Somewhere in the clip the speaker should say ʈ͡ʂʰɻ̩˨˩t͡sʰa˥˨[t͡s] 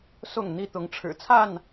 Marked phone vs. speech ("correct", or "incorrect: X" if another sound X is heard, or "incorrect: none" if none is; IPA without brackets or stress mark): incorrect: n